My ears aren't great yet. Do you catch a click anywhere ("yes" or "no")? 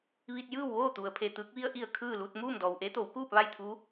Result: no